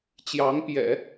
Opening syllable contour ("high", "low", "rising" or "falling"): rising